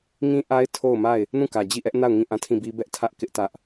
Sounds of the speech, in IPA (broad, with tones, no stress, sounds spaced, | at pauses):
ŋ ĩ˦ ʔ a˦ ɪ̯ tʰ o˦˨ ʊ̯ m a˦˨ ɪ̯ | n ũ˦˨ k ä˨ d͡ʑ i˦˨ ʔ ɛ˦ ʔ n a˦˨ ʊ̯ ŋ ĩ˦˨ ʔ ã˦˨ tʰ ĩ˦˨ b i˦ b ɛ˦ ʔ tʰ ä˦ ʔ k ɪ˦ ʔ t ä˦ ʔ